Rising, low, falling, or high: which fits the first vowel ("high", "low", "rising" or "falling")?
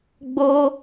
high